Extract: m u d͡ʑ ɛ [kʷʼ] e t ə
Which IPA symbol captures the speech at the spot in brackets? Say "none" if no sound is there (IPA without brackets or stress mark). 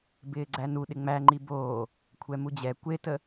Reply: kʷ